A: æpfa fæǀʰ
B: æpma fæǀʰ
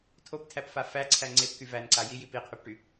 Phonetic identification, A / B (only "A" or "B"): A